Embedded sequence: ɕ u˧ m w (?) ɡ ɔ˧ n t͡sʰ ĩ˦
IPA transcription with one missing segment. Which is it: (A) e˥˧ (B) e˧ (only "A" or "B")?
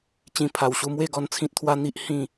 A